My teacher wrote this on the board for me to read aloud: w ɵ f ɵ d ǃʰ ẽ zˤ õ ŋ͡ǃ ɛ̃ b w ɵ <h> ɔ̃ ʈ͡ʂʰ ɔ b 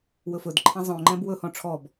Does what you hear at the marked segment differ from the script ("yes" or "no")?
no